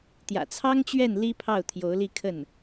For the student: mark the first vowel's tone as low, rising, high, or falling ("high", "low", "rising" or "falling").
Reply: low